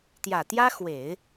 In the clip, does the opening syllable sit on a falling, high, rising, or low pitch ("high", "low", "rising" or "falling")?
low